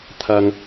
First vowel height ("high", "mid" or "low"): low